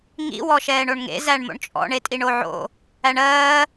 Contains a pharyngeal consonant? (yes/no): yes